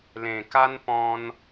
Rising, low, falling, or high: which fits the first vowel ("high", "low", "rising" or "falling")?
low